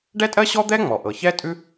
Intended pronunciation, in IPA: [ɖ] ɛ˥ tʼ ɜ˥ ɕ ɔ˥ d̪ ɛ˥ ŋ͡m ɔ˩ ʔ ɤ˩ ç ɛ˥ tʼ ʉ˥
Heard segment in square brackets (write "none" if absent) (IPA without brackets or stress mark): ɖ